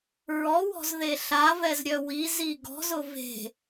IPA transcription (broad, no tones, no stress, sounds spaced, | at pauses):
ɹ ɔ w ɔ̤ z ð e ɬ a v ɛ z ɾʲ œ w i z i ɡ ɔ̤ z ʊ v e̤